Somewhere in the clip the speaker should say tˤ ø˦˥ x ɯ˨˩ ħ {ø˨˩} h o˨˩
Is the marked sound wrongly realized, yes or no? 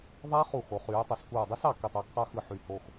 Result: yes